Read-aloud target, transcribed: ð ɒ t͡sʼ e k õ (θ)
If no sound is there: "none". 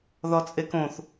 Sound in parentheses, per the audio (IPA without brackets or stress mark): θ